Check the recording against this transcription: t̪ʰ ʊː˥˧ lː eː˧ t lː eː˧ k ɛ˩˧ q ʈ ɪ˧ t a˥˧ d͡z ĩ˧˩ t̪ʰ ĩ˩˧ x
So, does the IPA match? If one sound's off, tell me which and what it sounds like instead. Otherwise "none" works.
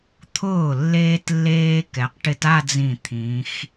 ʊː˥˧ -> ʊː˧˩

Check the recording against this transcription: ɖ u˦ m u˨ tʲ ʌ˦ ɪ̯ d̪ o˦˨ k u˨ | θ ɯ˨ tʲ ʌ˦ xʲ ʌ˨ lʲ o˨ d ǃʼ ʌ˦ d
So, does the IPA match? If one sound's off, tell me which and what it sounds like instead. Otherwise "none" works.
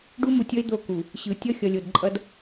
θ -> ɕ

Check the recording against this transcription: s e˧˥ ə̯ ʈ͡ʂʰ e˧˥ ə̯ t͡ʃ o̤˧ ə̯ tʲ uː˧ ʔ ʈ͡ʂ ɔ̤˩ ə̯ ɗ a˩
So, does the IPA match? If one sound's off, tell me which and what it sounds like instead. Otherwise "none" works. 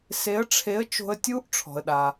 ʈ͡ʂ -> ʈ͡ʂʰ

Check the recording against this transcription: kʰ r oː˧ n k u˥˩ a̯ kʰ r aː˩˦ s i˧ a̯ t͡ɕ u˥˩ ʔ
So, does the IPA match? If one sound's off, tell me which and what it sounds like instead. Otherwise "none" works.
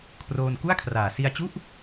none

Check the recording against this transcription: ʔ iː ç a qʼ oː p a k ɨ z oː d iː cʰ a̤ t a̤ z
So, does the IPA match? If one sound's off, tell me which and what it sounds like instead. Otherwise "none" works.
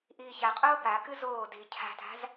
none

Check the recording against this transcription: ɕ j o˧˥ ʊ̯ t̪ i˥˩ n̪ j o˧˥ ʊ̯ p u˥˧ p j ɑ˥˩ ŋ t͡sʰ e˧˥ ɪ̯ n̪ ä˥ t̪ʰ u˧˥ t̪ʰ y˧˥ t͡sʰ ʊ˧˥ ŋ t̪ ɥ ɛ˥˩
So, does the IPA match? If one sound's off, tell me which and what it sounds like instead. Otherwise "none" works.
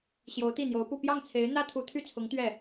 y˧˥ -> y˥˩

